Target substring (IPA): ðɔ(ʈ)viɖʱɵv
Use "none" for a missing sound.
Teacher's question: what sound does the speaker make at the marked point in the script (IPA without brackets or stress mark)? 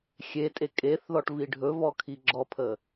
ʈ